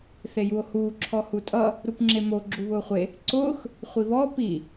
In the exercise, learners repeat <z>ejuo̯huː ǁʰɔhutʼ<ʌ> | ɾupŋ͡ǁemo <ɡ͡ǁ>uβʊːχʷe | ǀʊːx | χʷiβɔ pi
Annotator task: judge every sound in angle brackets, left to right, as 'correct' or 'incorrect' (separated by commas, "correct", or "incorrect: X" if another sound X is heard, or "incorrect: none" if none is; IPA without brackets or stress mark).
incorrect: θ, correct, correct